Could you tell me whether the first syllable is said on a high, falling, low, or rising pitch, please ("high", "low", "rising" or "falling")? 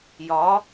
rising